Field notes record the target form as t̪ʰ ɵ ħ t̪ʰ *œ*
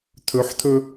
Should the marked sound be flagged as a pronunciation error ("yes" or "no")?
yes